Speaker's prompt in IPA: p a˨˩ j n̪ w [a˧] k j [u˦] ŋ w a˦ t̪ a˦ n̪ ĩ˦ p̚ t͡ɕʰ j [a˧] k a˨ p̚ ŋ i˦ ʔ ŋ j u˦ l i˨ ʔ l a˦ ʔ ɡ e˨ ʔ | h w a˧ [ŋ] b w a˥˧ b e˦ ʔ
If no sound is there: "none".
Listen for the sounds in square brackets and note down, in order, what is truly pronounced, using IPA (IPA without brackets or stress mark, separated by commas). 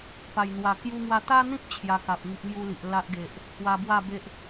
a˨˩, u˦, a˧, none